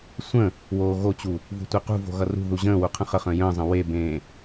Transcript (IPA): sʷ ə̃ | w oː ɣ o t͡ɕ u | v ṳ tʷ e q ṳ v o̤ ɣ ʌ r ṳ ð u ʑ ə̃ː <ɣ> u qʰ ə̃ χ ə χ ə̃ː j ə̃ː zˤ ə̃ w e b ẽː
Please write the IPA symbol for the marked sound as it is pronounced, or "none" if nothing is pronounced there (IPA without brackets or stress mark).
w